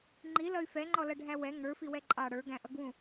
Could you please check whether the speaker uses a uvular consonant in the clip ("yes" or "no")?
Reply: no